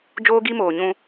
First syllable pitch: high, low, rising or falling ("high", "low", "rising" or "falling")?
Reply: high